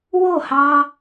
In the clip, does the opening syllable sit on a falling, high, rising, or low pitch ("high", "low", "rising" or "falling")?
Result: falling